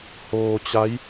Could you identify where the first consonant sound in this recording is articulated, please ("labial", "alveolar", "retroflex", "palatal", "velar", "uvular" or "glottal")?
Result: glottal